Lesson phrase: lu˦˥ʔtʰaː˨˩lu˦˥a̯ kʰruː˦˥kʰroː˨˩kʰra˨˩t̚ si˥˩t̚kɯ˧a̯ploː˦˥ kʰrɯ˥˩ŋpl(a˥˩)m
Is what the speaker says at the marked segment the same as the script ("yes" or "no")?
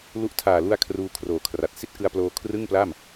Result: yes